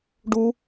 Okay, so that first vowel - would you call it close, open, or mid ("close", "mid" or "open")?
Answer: close